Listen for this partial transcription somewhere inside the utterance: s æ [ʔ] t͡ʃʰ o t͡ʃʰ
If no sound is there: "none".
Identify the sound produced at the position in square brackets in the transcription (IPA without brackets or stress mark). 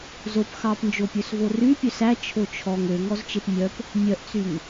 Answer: none